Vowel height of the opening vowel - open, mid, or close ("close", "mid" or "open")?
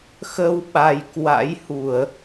mid